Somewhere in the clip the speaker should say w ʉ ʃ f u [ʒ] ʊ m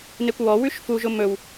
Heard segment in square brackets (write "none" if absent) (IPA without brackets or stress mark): ʒ